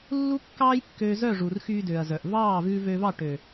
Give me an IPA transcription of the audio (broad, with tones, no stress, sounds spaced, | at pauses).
lː u˦ kː ɑː˦ j kː øː˧ z œ˦˨ ʐ u˨ r x yː˧ d ø˨ ɐ̯ z œ˨ ʔ v ɑː˦˨ v ʉː˧ v øː˧ v ɑ˦˨ ʈ ø˨